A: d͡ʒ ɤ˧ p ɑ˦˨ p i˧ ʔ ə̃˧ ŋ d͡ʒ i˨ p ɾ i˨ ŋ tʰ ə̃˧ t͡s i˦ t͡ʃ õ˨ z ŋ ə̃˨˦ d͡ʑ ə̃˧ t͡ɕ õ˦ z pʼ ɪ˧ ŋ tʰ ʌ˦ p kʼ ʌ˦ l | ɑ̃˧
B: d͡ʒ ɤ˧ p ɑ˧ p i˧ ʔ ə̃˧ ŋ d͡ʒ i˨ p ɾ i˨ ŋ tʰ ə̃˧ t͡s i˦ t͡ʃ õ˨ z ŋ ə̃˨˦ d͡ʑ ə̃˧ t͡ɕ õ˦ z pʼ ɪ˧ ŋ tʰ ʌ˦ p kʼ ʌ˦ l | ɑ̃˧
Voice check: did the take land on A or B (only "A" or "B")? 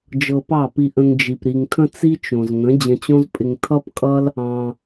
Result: A